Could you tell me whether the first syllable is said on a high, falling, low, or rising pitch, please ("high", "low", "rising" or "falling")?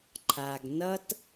low